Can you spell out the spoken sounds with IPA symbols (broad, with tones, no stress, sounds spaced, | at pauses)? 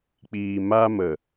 k͡p iː˨ m aː˧ m ə˨